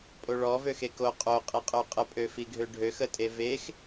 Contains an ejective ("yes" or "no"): yes